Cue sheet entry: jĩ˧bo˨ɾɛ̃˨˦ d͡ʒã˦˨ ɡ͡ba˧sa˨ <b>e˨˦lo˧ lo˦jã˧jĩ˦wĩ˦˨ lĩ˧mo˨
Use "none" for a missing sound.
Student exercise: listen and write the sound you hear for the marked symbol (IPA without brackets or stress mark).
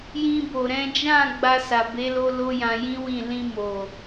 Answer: b